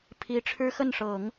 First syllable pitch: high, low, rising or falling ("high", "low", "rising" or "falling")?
rising